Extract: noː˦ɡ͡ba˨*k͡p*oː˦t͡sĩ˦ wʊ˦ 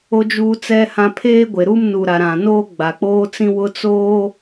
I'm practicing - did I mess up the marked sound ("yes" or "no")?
no